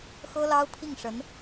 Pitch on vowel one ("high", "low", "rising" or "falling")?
high